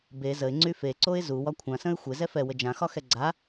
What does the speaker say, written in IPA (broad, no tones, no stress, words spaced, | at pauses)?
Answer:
be zəɪ̯ŋ͡ǀy feǀoɪ̯ zuwɒ kʷʰãsə̃ɪ̯ xʷezɛ fɛwə d͡ʒãxɒxɛ ɡ͡ǀa